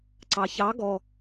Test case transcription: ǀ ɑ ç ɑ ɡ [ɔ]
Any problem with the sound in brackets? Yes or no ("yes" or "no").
no